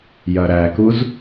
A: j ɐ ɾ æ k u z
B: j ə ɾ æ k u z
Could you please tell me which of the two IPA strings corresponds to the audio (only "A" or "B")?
A